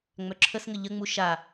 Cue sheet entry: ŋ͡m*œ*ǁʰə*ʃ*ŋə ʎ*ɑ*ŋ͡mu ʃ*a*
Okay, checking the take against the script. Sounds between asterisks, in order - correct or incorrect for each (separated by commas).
correct, incorrect, incorrect, correct